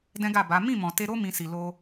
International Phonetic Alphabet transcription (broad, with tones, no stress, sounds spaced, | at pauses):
d ɛ̃˦ ɡ a˦˨ b a˨˦ m ĩ˦˨ m ɔ̃˨ t e˧ ɾ o˦ m ĩ˧ s i˨ l o˧